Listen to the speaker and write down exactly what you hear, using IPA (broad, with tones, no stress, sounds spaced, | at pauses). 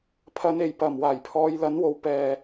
pʰ ɐ˨˧ n e˨˩ j p ɐ˨˩ m w aː˨˩ j pʰ ɔː˨˧ j l ɐ˨˥ n w o˨˧ w p ɛː˨